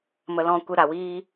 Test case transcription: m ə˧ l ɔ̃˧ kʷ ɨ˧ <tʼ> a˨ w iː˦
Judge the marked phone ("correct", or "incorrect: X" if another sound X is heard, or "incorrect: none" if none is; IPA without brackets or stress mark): incorrect: ɾ